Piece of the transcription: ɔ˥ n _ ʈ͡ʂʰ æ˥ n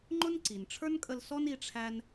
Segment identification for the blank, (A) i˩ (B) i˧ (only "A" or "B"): B